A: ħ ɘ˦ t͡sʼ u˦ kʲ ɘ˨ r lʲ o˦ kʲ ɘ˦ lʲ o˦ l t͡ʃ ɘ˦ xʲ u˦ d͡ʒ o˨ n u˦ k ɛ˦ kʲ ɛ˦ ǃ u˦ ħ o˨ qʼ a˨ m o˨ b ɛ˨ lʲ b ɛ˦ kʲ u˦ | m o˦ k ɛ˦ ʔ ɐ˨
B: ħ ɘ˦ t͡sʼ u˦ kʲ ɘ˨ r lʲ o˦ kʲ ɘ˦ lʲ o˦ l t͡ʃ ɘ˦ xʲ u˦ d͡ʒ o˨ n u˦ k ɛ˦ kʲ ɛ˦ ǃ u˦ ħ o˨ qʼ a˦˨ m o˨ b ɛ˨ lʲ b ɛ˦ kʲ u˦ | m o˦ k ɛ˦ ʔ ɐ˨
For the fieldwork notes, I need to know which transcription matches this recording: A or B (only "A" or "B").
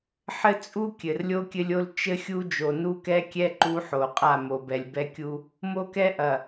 B